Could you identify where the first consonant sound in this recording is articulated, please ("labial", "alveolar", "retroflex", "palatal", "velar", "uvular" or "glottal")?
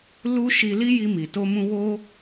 alveolar